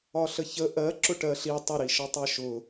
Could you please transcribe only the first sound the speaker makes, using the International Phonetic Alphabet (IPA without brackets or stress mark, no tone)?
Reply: ɒ